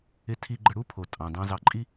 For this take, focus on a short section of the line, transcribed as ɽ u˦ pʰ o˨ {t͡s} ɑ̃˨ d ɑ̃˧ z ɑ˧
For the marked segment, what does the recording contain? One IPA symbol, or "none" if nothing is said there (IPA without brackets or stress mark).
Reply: tʼ